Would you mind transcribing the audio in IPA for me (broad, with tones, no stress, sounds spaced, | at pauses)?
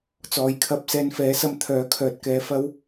t͡s ɔː˨˧ j kʰ ɐ˧ p̚ s ɛː˧ n f ɛː˨˥ s ɐ˧ m t̪ʰ œː˨˥ kʰ œː˧ t̚ k ɛː˧ f ɐ˥ w